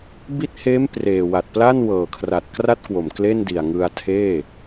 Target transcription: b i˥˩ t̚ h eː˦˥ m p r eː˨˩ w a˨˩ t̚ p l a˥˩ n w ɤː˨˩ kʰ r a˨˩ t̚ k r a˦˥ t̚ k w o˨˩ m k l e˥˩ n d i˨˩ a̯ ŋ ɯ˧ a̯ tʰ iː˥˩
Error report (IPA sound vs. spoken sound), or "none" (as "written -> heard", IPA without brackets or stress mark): iː˥˩ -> eː˥˩